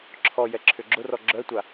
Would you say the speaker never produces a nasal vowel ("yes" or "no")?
yes